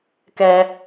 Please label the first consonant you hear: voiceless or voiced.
voiceless